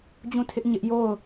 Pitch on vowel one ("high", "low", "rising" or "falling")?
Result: falling